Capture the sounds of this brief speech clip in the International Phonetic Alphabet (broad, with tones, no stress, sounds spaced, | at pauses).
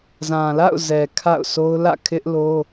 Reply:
z ã˨ l a̰˦˨ ʊ̯ z ɛ˨ kʰ a̰˦˨ ʊ̯ sʰ o˦ ʊ̯ l ä̰˦˨ kʰ ɪ˦ ʔ l o˦